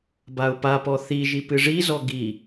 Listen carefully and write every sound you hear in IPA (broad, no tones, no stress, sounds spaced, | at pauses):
b a ʊ̯ p a p ɔ θ i ʒ i p ɨ ʐ i z ɔ ɡ i